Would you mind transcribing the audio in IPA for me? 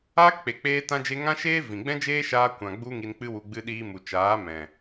aː˦ k k͡p e˨ k͡p eː˧ t ã˧ d͡ʒ e˧ ŋ ã˦ ʃ eː˦ v ĩ˨ ɡ͡b ɛ̃˦ d͡ʒ eː˦ ʃ aː˧ kʷ ã˨ ɡ͡b u˧ ŋ i˧ n k͡p ɨ˦ w u˧ ɡ͡b ɨ˧ ɗ iː˧ m u˨ t͡ʃ aː˨˦ m ɛ̃˨

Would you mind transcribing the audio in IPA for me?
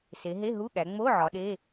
s e˩˧ ɦ e˧˥˧ ɦ u˧˥˧ ɠ æ˩˧ ŋ͡m o˧˥˧ ʕ ɒ˩˧ ɗ e˧˥˧

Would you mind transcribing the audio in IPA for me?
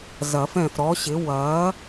z ɐ˨˩˦ f ɛ̃˦˨ f ɾ ɔ˨˥ ɕ ɪ˨˥ w ɐː˨˥

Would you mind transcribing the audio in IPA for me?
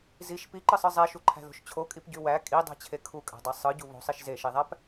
z i ʃ p i ǃ ɯ sˤ ɯ zˤ e ʃ u ǃʰ æ̤ ð o̤ ʃ t͡ɕʰ o kʼ i p ɟ y w æ kʼ i dˤ æ̤ t͡ɕʰ e kʰ u kʼ æ̤ dˤ e sˤ ɯ ɟ u β o̤ sˤ i ʃ z e ʃ i ðˤ æ p

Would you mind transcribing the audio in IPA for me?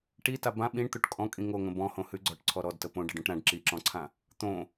ʈ i t a b ã ɓ ĩ ɳ t̪ o ʈ kʼ ɔ̃ kʼ ĩ ŋ o ŋ ə̃ b ɔ̃ h õ h ʉ ɡ͡ǀ ɔ ʈ ǀʰ ɔ ɾ ɔ d t ə p õ ɖ ə ɖ õ ʈ ɾ ã ɖ ǁ i ǁ ɔ̃ ǀʰ ã | t̪ õ

